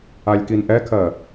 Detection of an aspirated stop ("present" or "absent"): present